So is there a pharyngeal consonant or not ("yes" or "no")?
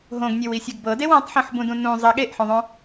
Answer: yes